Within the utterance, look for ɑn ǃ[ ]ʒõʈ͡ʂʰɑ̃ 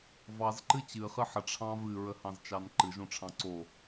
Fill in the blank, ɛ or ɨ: ɨ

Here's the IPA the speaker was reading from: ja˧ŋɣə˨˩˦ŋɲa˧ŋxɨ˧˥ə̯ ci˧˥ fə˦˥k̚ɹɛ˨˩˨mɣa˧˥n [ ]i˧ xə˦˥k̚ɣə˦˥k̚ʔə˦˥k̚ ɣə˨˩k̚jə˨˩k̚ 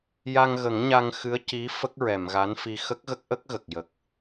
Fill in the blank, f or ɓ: f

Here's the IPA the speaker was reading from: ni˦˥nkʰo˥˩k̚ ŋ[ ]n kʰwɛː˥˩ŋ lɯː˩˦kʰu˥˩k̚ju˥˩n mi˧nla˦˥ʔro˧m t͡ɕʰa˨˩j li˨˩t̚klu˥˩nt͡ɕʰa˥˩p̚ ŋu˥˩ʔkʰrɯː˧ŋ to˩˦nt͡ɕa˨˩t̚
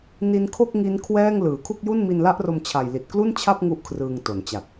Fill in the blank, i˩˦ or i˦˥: i˦˥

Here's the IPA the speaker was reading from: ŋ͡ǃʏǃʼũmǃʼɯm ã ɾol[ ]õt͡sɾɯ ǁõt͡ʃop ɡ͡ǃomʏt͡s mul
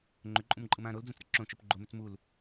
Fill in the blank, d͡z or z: d͡z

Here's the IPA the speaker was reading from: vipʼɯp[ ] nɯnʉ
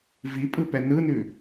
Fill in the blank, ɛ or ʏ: ɛ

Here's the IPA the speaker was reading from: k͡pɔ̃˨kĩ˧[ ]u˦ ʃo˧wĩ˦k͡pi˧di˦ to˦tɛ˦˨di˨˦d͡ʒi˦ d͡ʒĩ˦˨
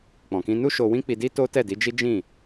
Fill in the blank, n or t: n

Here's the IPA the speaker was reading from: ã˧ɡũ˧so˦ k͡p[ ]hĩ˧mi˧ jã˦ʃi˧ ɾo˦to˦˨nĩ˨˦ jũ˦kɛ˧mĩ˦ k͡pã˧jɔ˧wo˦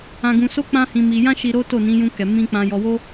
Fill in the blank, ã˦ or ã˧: ã˦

